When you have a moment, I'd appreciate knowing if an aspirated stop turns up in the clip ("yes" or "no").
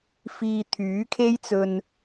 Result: yes